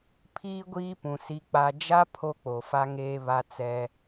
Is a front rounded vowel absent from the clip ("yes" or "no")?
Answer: yes